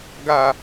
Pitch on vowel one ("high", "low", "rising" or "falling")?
low